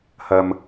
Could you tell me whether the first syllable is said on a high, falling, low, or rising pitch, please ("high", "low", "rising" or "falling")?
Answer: high